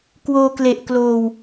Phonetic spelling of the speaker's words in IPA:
k w oː˧ k l e˨˩ ʔ k l oː˧ w

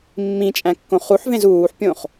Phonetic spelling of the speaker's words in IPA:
mː ĩ t͡ʃʼ æ̃ kː õ χ u ħ v ẽ z uː ħ pʲ õ χ

